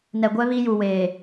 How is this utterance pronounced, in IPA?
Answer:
n ɛ˨ ɡʷ ɛ˦ β i˦ j u˨ w eː˨

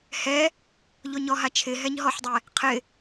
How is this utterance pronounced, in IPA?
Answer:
h ɛ | ʎ o ɲ ɔ ɦ a t͡ʃʰ ɪ ɦ ɛ ɲ ɦ ɔ ħ dˤ ɛ | qʰ ɪ

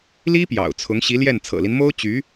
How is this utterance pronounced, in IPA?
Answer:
l i˥ p j ɑ̰˨˩ ʊ̯ t͡sʰ ʊ˧˥ ŋ ɕ i˧˥ l j ɛ˥˩ n t͡sʰ ɤ̰˨˩ l i˦ n m o˥ ʊ̯ t͡ɕ y˧˥

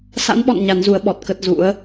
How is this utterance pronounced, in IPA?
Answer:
s a̰˧˥ n ɓ ɔ̰˧˨ n ɲ a˨˦ n z u˨˦ ə̯ ɓ ɔ˨˩ t̚ k ə˦˥ t̚ z ṵ˧˥ ə̯

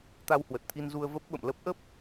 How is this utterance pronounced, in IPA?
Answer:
t̪ a˧ w h w ə˨˩ t̚ t̪ʰ i˧ n z u˧ ə̯ v ə˦˥ p̚ ɓ ə̰˧˨ m l ə˦˥ p̚ ʔ ə˦˥ p̚

